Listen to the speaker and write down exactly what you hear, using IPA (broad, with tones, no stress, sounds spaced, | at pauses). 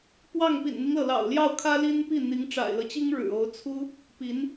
p w ɑ˥˩ ŋ p ḭ˨˩ n n̪ i˦ ŋ l ɤ˩ l ɑ̰˨˩ ʊ̯ l j ɑ˥˩ ʊ̯ kʰ ä˥ l i˥ n p i˥˩ n̪ i˧˥ ŋ ʈ͡ʂ a̰˨˩ ɪ̯ l ɤ˦ t͡ɕ i˥ ŋ ɻ ɻ̩˨˩ o˧˥ ʊ̯ t͡sʰ u˥ | p i˧˥ n